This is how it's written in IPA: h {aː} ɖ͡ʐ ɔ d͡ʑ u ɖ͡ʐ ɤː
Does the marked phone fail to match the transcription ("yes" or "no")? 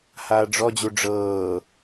no